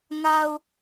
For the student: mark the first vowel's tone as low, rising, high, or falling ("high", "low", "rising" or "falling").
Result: low